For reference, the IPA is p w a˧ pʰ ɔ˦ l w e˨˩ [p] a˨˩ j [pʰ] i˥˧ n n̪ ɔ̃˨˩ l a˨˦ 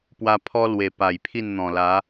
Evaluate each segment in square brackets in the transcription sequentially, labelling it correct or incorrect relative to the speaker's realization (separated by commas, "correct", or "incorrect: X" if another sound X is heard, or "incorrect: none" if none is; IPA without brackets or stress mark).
correct, correct